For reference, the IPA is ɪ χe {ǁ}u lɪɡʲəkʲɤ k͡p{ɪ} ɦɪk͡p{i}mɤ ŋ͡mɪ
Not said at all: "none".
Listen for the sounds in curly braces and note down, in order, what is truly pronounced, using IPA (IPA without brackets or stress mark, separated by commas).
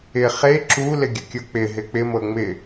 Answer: ǁ, ɪ, ɪ